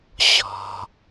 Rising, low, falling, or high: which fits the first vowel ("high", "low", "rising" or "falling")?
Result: low